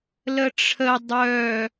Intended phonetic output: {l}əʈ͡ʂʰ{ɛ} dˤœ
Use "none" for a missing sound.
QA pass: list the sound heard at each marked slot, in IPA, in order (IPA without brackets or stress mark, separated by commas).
l, ə